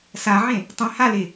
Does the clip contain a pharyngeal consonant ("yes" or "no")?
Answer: yes